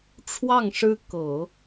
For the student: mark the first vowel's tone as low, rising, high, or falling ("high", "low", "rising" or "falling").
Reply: falling